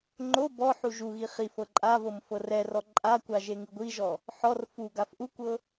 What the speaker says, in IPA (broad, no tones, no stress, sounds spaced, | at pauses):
ŋ͡ǃ o b ɔ ħ u ʒ u ɣ i χ i f ɤ ǃʼ a v ɤ m f ɤ r ɛ r ɔ ǃʼ a kʷ a ʒ e ŋ ɯ ɡʷ i ʒ ɔ | ħ ɔ r f u ɡ a f ʔ u kʷ ɤ